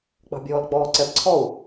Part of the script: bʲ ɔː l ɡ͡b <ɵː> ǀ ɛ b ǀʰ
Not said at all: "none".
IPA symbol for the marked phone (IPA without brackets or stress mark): ɔː